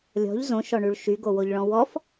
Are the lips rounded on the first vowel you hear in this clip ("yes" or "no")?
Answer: yes